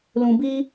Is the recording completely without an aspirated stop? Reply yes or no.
yes